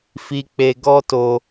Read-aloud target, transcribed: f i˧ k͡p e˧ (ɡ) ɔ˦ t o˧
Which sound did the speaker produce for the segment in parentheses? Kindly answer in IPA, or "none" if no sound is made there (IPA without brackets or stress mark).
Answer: ɡ